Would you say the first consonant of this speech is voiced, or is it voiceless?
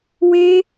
voiced